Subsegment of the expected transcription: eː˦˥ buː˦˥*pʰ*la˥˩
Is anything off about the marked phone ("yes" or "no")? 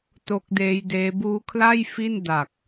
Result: yes